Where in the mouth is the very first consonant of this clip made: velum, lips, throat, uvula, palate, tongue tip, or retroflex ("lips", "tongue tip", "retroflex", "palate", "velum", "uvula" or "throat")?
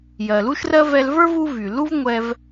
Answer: palate